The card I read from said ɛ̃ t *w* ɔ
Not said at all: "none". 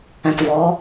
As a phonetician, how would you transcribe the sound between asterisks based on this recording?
v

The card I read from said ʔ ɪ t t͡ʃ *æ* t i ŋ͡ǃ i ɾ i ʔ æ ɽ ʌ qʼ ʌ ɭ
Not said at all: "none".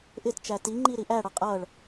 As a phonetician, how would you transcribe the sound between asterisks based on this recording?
æ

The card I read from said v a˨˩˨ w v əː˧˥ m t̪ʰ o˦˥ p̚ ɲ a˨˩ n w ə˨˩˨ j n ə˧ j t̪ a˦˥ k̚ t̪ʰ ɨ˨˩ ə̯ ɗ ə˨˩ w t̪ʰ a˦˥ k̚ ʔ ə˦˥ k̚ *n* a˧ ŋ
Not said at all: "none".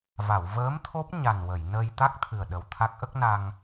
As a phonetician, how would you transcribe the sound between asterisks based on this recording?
n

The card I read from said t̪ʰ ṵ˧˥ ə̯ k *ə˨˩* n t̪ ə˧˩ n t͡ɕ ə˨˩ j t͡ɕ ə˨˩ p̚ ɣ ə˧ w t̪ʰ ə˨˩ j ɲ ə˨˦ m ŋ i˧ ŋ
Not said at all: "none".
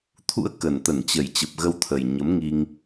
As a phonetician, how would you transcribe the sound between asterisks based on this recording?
ə˨˩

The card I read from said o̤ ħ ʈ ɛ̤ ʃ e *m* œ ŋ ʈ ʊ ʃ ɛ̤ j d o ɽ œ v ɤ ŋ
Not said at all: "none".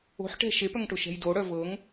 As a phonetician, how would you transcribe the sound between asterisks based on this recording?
p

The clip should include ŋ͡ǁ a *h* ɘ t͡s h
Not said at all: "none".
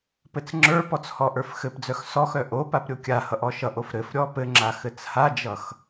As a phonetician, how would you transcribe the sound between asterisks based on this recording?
x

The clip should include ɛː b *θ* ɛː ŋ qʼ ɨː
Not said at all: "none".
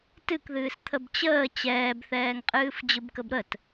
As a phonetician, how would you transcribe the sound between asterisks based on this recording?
θ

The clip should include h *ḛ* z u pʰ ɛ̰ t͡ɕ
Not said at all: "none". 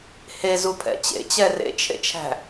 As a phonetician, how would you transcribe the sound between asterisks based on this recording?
e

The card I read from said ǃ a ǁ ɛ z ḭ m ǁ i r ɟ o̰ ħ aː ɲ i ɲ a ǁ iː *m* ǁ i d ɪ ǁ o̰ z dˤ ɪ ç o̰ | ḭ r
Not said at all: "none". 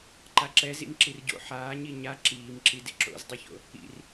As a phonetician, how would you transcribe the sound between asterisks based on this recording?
m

